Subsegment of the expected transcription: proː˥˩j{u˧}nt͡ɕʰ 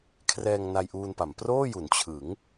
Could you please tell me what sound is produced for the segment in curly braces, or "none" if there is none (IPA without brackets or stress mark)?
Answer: u˩˦